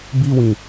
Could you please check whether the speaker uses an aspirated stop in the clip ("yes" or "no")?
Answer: no